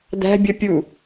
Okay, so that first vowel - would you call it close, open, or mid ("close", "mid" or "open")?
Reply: open